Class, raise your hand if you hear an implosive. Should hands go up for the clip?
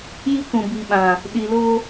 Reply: yes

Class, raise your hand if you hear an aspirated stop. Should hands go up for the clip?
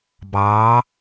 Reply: no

